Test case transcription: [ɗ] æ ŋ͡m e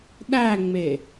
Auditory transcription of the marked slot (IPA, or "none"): ɗ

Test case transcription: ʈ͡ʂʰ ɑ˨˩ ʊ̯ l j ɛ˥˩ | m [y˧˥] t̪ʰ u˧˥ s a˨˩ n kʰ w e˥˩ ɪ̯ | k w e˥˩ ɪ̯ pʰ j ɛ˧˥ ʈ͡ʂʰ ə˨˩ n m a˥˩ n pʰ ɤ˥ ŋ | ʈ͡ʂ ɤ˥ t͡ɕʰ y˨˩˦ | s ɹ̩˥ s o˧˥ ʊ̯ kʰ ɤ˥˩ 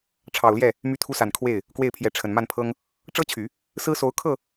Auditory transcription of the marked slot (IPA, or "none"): y˧˥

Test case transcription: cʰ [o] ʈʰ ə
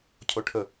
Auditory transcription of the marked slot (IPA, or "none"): o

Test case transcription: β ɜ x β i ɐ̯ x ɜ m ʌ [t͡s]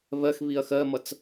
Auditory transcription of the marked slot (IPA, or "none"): t͡s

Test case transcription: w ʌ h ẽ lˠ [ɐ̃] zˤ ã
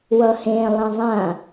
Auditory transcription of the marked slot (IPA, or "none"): ɐ̃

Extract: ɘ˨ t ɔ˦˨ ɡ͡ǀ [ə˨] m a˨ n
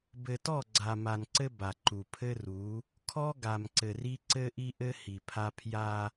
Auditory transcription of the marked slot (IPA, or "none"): a˨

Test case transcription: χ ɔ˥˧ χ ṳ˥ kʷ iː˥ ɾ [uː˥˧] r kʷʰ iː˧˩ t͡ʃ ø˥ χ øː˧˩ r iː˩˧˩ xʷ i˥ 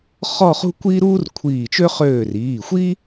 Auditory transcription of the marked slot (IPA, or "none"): uː˥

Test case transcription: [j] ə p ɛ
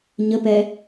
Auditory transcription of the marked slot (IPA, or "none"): ɲ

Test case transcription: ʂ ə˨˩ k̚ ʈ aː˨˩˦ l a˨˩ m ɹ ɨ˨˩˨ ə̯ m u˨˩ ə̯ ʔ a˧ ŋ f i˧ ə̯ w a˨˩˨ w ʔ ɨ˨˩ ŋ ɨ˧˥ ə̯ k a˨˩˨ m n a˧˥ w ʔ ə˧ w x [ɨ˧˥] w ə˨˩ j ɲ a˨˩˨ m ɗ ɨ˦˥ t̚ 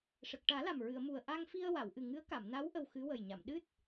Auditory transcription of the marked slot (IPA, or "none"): ɨ˧˥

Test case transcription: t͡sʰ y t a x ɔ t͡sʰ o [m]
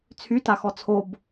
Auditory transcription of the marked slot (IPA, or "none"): b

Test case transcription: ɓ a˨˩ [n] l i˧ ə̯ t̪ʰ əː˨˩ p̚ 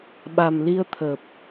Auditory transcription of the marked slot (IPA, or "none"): m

